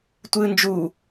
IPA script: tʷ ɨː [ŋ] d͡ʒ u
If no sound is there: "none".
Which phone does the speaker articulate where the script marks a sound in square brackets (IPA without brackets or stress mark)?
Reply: n